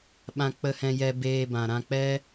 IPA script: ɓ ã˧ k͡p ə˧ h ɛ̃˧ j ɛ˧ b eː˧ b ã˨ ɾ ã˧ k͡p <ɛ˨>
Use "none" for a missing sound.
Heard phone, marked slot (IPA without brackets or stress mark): ɛ˦